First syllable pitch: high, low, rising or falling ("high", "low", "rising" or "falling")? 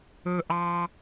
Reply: high